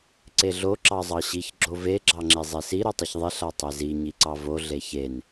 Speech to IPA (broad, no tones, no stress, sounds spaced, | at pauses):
ǀ e ɮ o ǁ ɑ zˤ ɑ ɕ i ç ɡ͡ǁ o v e ɡ͡ǁ ɑ ŋ͡ǁ e zˤ e s i ɾ o tˤ i ç ðˤ e ɬ a tˤ e z i ɲ i ǀ ɑ v o ɮ e ç e n